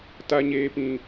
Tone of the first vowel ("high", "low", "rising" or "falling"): high